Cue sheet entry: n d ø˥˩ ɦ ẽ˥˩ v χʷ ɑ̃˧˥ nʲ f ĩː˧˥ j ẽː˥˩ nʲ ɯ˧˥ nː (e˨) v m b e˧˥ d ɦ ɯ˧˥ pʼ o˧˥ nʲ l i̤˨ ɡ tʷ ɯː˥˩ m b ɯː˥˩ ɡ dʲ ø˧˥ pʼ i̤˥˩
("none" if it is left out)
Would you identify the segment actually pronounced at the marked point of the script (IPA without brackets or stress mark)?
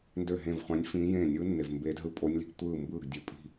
e˨